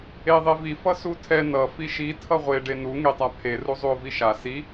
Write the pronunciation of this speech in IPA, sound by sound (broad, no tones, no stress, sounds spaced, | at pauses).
e ðˤ e v i f ʌ s u tʰ ɛ n ʌ f i ʃ i tʰ ʌ ʁʷ e ɖ e n u ŋ e tˤ a pʰ e r u zˤ u o̯ v i ʃ a s i